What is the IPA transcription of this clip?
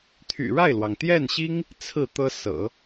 t̪ʰ y̰˨˩ ɻ a˥˩ ɪ̯ l w ɑ˩ ŋ t̪ j ɛ˥˩ n ɕ i˥ ŋ | t͡sʰ ɹ̩˥˩ t̪ ɤ˥ s ɤ̰˨˩˦

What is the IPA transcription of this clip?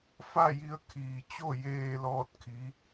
f a˥˨ j i˧ ə̯ kʰ iː˩ t͡ɕ o˥˨ j eː˧ l ɔː˥˨ t̚ kʰ i˧˥

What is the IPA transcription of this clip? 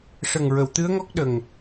ʂ ə˨˩ ŋ ɹ ə˨˩˨ w t̪ ɨ˧˥ ə̯ ŋ ɔ˦˥ k̚ ɗ ə˨˩ ŋ

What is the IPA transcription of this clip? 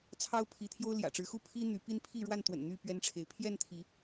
t͡sʰ ɑ˦ ʊ̯ pʰ i˨˦ t̪ʰ j o˦ ʊ̯ l j ä̰˨˩ ʈ͡ʂ ɻ̩˨˦ x u˦ pʰ i˦ n̪ y˨˦ p i˦ n pʰ i˥˨ ɻ w a˥˨ n t̪ w ə̰˨˩ n n̪ y˥˨ p ɥ ɛ˦ n ʈ͡ʂʰ e˨˦ ɪ̯ pʰ j ɛ˥˨ n t̪ʰ i˨˦

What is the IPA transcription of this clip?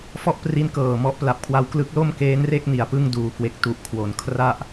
f ɔ˥˩ ʔ p r i˦˥ n k ɤː˨˩ m ɔ˥˩ ʔ p l a˨˩ p̚ kʰ w a˧ w k l ɯ˦˥ k̚ l o˥˩ m k eː˦˥ n r e˥˩ k̚ n i˩˦ a̯ p ɯ˥˩ ŋ d uː˨˩ k w e˨˩ k̚ t u˨˩ ʔ kʰ w o˩˦ n kʰ r a˥˩ ʔ

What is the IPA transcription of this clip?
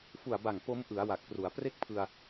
f u˨˩ a̯ b a˨˩ ŋ p o˦˥ m ʔ ɯ˩˦ a̯ w a˨˩ k̚ p r u˩˦ a̯ p r e˥˩ k̚ pʰ ɯ˧ a̯

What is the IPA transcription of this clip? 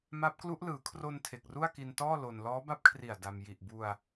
m a˦˥ p̚ k l u˦˥ ʔ l ɯː˩˦ kʰ r o˧ n tʰ e˨˩ k̚ r u˥˩ a̯ k i˧ n t ɔː˥˩ l o˧ n l ɔː˦˥ b a˦˥ p̚ kʰ r i˨˩ a̯ d a˧ m j i˨˩ ʔ b u˧ a̯

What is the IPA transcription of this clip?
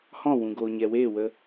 h ɔ̃˦˨ w ũ˨ ɡ oː˨ ɲ ɛ˨ w eː˦˨ w ə˧

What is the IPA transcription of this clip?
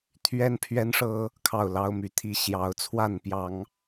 t̪ʰ ɥ ɛ˦ n pʰ ɥ ɛ˦ n ʂ ɤ˦ | kʰ ɑ˥˨ ʊ̯ l ɑ˦ ʊ̯ m y˨˦ t̪ʰ i˥˨ ɕ j ɑ˨˦ ʊ̯ t͡sʰ w a˥˨ n p j ɑ˨˦ ŋ

